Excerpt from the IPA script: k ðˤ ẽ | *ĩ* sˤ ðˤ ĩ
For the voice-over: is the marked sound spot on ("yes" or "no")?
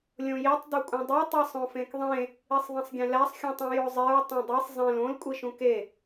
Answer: no